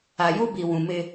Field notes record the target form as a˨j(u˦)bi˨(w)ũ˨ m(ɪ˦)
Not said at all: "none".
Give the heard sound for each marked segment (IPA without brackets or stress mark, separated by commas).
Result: u˦, w, ɪ˦